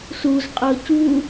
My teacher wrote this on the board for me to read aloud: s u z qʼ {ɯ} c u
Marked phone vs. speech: incorrect: ɤ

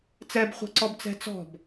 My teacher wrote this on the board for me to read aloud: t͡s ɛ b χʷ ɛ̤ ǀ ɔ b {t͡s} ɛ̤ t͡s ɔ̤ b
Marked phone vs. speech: correct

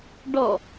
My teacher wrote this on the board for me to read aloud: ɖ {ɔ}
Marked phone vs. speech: correct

